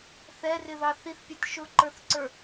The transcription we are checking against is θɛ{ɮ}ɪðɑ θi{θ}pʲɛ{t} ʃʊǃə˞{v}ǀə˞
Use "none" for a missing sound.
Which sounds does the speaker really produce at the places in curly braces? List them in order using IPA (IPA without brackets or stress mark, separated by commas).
r, θ, t, θ